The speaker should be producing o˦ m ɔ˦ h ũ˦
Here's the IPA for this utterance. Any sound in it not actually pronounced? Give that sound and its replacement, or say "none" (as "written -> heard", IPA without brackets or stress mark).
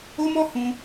none